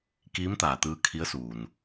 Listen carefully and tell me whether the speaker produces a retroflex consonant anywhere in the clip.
no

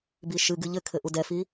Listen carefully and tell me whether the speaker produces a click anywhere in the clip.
no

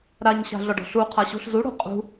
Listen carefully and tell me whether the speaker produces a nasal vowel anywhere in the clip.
no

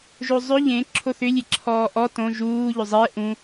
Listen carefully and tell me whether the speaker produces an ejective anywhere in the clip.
no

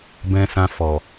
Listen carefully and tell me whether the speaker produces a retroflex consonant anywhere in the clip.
no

